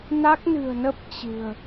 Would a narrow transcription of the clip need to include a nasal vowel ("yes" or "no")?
no